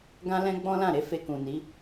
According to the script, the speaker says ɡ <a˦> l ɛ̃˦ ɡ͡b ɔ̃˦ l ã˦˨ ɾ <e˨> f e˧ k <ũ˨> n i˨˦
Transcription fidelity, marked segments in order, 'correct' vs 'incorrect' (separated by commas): incorrect, incorrect, correct